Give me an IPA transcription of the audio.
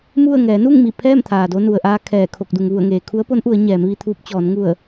m u˥˨ ə̯ ŋ ɛː˩˧ n u˥˨ ŋ m i˧˩ pʰ ɛː˥˨ m t̪ʰ aː˩ d o˧ n u˩ ə̯ ʔ aː˧ kʰ ɛː˧˩ kʰ o˧˩ k̚ d u˩ ŋ ʋ u˧˩ ə̯ ŋ eː˩ kʰ u˧˥ ə̯ p o˧˥ n ʔ u˩˧ ə̯ ɲ ɛː˩˧ m ʋ i˧ t̪ʰ uː˧ p̚ t͡ɕ ɔː˩˧ n ŋ u˧˩ ə̯

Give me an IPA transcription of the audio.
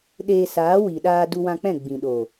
ɗ eː˧ s aː˨˦ w i˨ ɗ aː˧ d u˧ w ã˧ k͡p ɛ̃˦˨ ɡ͡b ĩ˨ ɗ o˨

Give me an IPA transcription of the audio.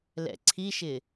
l ɛ̰ ǀʰ i ʃ ɪ

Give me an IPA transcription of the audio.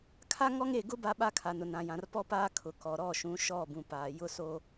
kʰ a˦ ŋ ɔ˦ ŋ e˦˨ ɡ ʊ˦ b a˦ ɓ a˦ kʰ a˨ n ʊ˨ n ã˨ j ã˨ r p ɔ˦ p aː˦ kʰ ʊ˨ k ɔ˨ ɾ ɔ˦˨ ʃ ũ˨˦ ʃ ɔ˦˨ b ũ˨ p aː˨ j ʊ˦ s oː˦

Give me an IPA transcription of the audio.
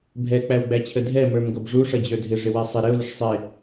bʱ ɛ k͡p æ w ɡ͡b æ t͡ɕʰ ə dʱ ɛ m ə˞ m ɡ ʌ b ʐ u ʂ ʌ d͡ʑ ə˞ dʱ ɪ ʐ ɪ w ɛ sˤ ɪ ɾ ɪ ʊ̯ l ɪ ʂ sˤ ɪ

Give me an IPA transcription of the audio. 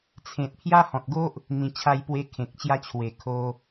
t͡sʰ ẽ˨ t̚ pʰ j a˦ h ɔ̃˨ t̚ ɡ o˦ ʔ | n̪ ĩ˨˩ t͡ɕʰ a˧ j p w e˧ kʰ ẽ˨ k̚ t͡ɕ j a˦ t͡ɕʰ w e˨˩ kʰ o˧

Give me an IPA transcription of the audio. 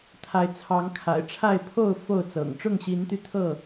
t̪ʰ a˨˦ ɪ̯ t͡sʰ ɑ˨˦ ŋ kʰ a̰˨˩ ɪ̯ ʈ͡ʂʰ a˥˨ ɪ̯ pʰ o˥˨ ʊ̯ f o˥˨ ʊ̯ t͡s ɤ̰˨˩ ŋ ʈ͡ʂ ʊ˥˨ ŋ ɕ i˨˦ n t̪ y˧ t̪ʰ ɤ˥˨

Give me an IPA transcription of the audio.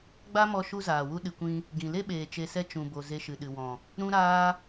ɡ͡b a˦ m ɔ˧ ʃ u˦ z aː˨ w u˦ ɗ ɨ˨ kʷ ĩ˧ | ɡ ĩ˨ l e˦ ɓ eː˨ t͡ʃ e˧ s ɛ˦ t͡ʃ ũ˨ b o˨ z e˧ ʃ ɨ˨ ɗ ɨ˨ w ɔ̃˨ | ɾ ũ˦ ɾ aː˦

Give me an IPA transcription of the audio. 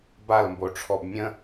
b a l m b o ʈ͡ʂʰ ɔ b mʲ ə̃

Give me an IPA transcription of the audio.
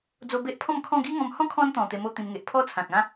d͡z o˧ b e˦ ʔ pʰ ɔ̃˥˧ m kʰ ɔ̃˥˧ ɡ i˦ ŋ ɔ̃˧ m h ɔ̃˦ kʰ ɔ̃˦ n t̪ ɔ̃˨˩ t̪ e˧ m o˥˧ t̪ ĩ˧ m ŋ e˨ ʔ pʰ ɔ˥˧ t͡sʰ ã˨ k̚ ã˦

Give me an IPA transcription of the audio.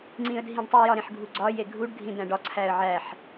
ŋ͡ǀ ĩ ə̯ dʱ ĩ ɖ tˤ i j ɒ ɾ ẽ ħ ɡʱ u ɡ͡ǀ ɒ j e ɡʱ u ɖ ɡʱ ĩ d̪ æ̃ ɖ ɒ ǀʰ æ ə̯ ʕ æ ħ

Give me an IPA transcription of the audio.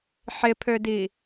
ħ ɪ pʰ ø d i

